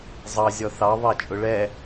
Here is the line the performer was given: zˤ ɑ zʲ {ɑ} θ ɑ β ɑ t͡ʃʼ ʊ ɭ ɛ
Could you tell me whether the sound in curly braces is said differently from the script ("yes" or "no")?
yes